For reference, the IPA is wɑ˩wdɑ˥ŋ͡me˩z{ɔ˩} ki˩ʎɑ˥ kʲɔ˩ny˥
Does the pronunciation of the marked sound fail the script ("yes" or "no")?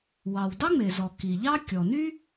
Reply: no